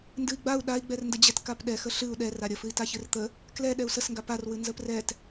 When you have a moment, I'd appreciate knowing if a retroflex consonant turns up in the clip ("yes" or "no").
no